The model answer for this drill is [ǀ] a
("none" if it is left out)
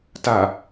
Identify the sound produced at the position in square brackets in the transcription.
t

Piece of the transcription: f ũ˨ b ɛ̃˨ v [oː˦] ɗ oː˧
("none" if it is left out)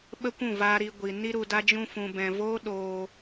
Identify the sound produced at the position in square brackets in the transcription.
oː˦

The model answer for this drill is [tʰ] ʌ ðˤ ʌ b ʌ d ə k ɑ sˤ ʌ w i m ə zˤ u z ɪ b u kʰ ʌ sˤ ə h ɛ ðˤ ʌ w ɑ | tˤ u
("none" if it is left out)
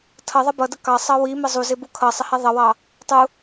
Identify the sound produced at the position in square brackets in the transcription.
tʰ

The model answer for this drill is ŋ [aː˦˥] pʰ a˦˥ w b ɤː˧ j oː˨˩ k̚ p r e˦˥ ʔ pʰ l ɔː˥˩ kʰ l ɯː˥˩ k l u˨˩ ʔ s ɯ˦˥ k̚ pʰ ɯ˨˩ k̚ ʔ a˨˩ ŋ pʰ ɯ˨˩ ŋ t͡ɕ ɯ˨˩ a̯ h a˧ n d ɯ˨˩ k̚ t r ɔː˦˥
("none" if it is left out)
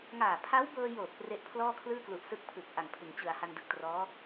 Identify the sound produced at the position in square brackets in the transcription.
aː˨˩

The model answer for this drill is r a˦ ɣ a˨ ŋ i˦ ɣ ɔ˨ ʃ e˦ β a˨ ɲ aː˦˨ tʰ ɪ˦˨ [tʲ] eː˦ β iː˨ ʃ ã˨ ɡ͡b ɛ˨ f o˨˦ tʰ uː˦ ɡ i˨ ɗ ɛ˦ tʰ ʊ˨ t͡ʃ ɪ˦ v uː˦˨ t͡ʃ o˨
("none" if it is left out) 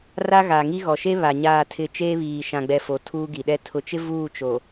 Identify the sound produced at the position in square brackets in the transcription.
t͡ʃ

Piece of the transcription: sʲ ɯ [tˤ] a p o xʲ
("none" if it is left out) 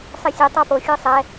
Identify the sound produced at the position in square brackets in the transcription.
tˤ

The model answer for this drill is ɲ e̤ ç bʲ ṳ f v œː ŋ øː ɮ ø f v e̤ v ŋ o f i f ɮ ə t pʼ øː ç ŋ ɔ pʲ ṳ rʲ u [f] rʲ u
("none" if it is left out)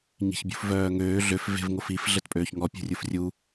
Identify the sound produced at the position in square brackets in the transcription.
f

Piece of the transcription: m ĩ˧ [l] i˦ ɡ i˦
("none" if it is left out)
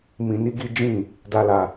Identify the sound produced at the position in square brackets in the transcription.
n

